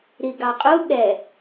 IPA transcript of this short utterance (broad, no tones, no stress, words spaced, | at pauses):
ɾiɡɑqʼu ɠɛ